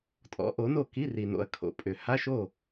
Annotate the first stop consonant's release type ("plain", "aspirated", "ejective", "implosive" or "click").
ejective